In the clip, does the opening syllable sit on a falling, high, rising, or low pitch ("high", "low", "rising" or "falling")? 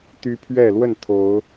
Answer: high